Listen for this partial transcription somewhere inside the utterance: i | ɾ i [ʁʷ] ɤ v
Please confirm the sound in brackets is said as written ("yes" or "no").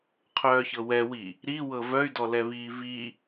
no